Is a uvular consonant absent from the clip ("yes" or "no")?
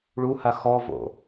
yes